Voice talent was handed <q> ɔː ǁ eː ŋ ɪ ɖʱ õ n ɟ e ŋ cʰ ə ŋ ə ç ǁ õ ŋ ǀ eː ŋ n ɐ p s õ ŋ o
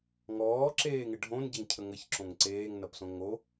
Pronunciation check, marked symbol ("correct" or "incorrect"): incorrect